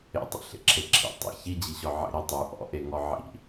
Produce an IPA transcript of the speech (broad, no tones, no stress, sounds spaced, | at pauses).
ḛ tˤ ḛ ɬ ḛ ǁʰ e ǁʰ ḭ tˤ ḛ ç i d͡ʑ i ɕ ɔ ʕ ḛ ɾ i tˤ ʉ ʔ ɔ̰ ʔ e ŋ ɔ ʕ ḭ